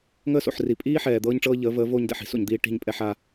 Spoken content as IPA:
ŋ əː˦ s o̰˨ ħ r i˨ pʼ iː˦ ħ ɛː˨ d̪ ɤː˦ ɲ ʈ͡ʂ ɤː˦ ʎ əː˨˦ v əː˨˦ v oː˦ ɲ d ɛ̰˦˨ ħ i̤˦ s o̰˨ ɲ d̪ iː˦ ʈ i̤˦˨ ɲ pʼ ɛ˦ ħ a˦

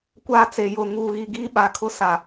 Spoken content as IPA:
kʷ aː˦ t͡s e˨ j ʊ˨ ŋ uː˨ ɣ i˨ ɡ iː˦ ɓ a˨ kʰ ʊ˦ s a˨

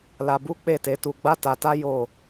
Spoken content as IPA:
l a˧ b u˦ k͡p e˦˨ t e˨˦ t u˧ ɡ͡b a˦ t a˧ t a˦ j o˦˨

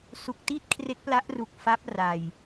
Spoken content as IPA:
s u˨˩ k̚ t i˥˩ t̚ kʰ r e˦˥ k̚ p l a˦˥ ʔ r u˨˩ k̚ f a˦˥ p̚ r a˨˩ j

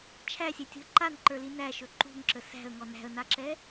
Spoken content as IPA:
t͡ʃʰ æ sʲ ɛ tʲ ṳ ə̯ ǃ a n ǃ ə˞ l i n æ ʃ ɵ ǃ ṳ ŋ ǁ ə s æ̤ ə̯ ŋ ɔ n æ̤ ə̯ n a ǁ ɛ

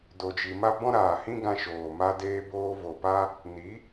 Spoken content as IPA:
d o˨ d͡ʒ i˨ m a˦ b ɔ̃˦ ɾ aː˨ h ĩ˦ ɡ ã˧ ʃ oː˨ m a˧ d eː˧ b oː˧ v o˨ p a˦ | n i˨˦

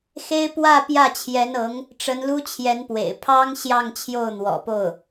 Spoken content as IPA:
x e˥ ɪ̯ p w ä˥˧ p j ä˥˩ t͡ɕʰ j ɛ˧˥ n ɤ˧˥ ŋ | ʈ͡ʂ ə˧˥ n l u˥ t͡ɕʰ j ɛ˧˥ n p w ḛ˨˩ ɪ̯ pʰ ɑ˥ ŋ ɕ j ɑ˥˧ ŋ t͡ɕʰ j o˥˩ ʊ̯ n̪ w ɔ̰˨˩ p o˥˩ ʊ̯

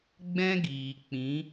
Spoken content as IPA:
ɡ͡b ɛ̃˦ ɡ iː˨ k͡p ĩ˨˦

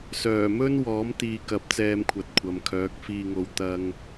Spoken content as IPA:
s œː˨˩ m ɵ˥ n w ɔː˨˥ m t̪ iː˨ k ɐ˨˥ p̚ t͡s ɛː˧ m kʷʰ ɐ˨ t̚ kʷʰ ɐ˨ m kʰ œː˨˥ k̚ f iː˧ ŋ o˧ w t̪ ɐ˧ ŋ

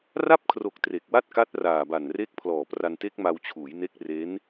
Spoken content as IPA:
r a˥˩ p̚ kʰ r o˨˩ k̚ t r e˨˩ k̚ w a˥˩ t̚ k a˦˥ t̚ r aː˨˩ b a˨˩ n r e˦˥ k̚ pʰ l ɔː˨˩ p r a˧ n t e˦˥ k̚ m a˧ w t͡ɕʰ uː˩˦ j n e˦˥ k̚ r e˦˥ n

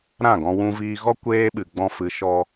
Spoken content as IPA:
ɾ ã˦˨ ɡ ɔ̃˧ w ũ˧ v iː˧ ɣ ɔ˦ kʷ eː˧ ɓ ɨ˨ ɡ͡b ɔ̃˧ f ɨ˨˦ ʃ ɔ˧

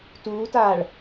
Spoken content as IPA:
t uː t aː ɭ

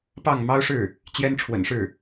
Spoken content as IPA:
p ɑ˥˩ ŋ m ɑ˥ ʊ̯ ʂ ɻ̩˥˩ | t͡ɕ j ɛ˥ n ʈ͡ʂʰ w ə̰˨˩ n ʂ ɻ̩˥˩

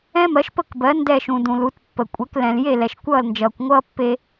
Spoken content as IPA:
ɛ̃˥ m ɜ˩˥ ʃ p ə˥˩ k b ɜ˩˥ n d ɛ˥˩ ʃ ũ˩ d ũ˩ l u˩˥ t pː ə˩ kʷʼ ɛ˩˥ k l ɛ̃˩ l j e˥˩ l ɛ˩ ʃ kʷ ʌː˥˩ l n d͡ʒ ʌː˩ kʷ ŋʷ ʌː˥ pː e˧

